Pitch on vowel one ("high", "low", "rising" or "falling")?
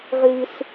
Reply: low